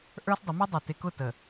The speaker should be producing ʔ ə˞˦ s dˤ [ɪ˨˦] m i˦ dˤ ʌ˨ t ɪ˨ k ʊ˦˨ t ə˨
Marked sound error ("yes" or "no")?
no